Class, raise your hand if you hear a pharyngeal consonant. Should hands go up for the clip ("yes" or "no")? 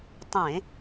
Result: no